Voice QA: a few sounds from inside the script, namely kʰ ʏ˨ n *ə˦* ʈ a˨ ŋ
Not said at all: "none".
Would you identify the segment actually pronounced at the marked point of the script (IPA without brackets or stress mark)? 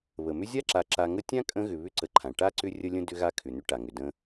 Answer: ʏ˦